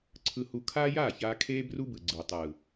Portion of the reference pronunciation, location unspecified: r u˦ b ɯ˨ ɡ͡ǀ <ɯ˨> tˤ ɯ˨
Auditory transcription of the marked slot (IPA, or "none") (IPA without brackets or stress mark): ɯ˨